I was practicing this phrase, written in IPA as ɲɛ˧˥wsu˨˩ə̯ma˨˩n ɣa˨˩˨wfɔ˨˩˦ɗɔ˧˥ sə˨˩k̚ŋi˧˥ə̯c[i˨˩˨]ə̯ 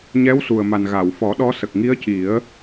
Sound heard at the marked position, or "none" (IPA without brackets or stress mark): i˨˩˦